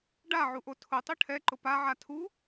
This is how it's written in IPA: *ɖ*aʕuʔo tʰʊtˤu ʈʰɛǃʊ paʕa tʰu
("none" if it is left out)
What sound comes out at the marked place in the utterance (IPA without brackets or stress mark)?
ɖ